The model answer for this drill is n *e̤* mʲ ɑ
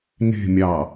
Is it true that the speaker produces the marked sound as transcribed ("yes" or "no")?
yes